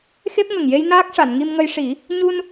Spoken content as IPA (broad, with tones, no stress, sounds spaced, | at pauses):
x e˦˥ p̚ ŋ ə˨˩ ŋ j e˧ j n aː˦˥ k̚ ʂ a˨˩˨ n ŋ i˧ m ŋ ə˧ j ʂ i˨˩˦ | ɲ u˧ n